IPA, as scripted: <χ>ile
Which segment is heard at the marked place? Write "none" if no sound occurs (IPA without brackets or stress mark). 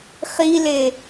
χ